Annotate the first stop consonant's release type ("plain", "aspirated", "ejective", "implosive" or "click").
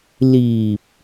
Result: plain